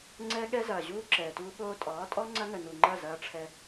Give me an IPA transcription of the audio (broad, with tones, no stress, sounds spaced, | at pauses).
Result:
ŋ͡ǀ ɛ˦ ɠ ɛ˦ z ɐː˨ ʑ uː˦ ǁ ɛː˨ t uː˦ ɠ oː˦ tʼ ɒː˨˦ tʼ ɔ˦ ŋ͡ǀ ɐ˦ ŋ ə˨ n u˨ ŋ͡ǃ ɐ˦˨ z ɐː˧ ʈ͡ʂʰ ɛ˧